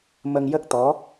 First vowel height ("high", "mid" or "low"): mid